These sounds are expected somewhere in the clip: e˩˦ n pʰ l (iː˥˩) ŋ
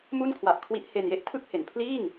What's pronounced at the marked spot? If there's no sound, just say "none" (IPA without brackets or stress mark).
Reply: iː˥˩